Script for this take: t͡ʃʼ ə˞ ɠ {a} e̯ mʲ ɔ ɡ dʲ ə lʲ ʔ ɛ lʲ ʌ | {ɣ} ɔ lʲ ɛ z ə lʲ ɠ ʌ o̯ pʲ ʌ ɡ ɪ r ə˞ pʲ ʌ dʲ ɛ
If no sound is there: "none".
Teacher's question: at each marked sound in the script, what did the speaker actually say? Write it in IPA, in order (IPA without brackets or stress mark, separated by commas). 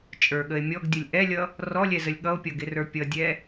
ə, r